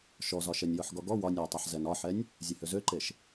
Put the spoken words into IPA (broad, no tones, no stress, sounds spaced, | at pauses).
ʃ ɔ z ɒ ʃ ɛ nʲ j ɔ ħ ɡ ɔ ɡ ɔ w ɒ nʲ ɒ j tˤ a ħ z ɛ n ɒ ħ ɛ nʲ | zʲ ɛ h ø z ø ǃ e ʃ